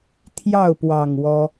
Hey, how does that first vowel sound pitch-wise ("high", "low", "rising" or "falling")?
falling